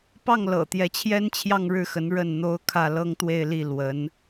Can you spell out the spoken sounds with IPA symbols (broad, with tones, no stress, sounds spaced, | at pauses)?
p ɑ˥˩ ŋ l ɤ̰˨˩ t̪ j ɛ˧˥ t͡ɕʰ j ɛ˥ n t͡ɕʰ j ɑ˥˧ ŋ ɻ ɻ̩˥˩ x ə˧˥ n ɻ ə˥˩ n n̪ o˥ ʊ̯ kʰ ä˥˩ l ɤ˥ ŋ t̪ w e˥˧ ɪ̯ l i˥˩ l w ə˧˥ n